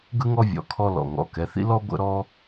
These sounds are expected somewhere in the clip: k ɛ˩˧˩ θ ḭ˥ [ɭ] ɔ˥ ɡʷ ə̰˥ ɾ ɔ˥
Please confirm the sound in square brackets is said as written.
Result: no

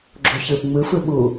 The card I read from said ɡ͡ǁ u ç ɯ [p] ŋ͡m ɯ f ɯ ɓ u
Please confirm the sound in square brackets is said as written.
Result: yes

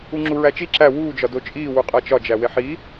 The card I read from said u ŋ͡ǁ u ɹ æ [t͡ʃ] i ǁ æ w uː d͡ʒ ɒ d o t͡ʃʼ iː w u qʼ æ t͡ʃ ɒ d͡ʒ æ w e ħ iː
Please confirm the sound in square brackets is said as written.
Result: yes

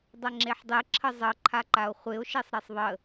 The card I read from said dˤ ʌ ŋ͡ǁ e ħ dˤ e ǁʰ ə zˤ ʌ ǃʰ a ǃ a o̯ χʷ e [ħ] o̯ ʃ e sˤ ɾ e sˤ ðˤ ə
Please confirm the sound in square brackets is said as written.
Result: no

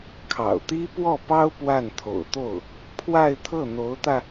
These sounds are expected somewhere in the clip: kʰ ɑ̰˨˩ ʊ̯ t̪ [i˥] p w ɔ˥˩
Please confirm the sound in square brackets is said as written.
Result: yes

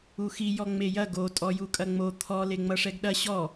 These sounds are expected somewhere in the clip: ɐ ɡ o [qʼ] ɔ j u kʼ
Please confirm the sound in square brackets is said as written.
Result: no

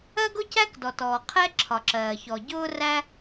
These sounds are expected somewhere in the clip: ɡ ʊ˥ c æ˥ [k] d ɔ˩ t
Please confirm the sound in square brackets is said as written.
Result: yes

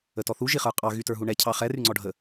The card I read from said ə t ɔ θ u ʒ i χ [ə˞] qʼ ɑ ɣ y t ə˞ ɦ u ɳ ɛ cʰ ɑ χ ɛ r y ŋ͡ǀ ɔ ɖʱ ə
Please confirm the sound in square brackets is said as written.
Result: yes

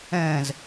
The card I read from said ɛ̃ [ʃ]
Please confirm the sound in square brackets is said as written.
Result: no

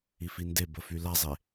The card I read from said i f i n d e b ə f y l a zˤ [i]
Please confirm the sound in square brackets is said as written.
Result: no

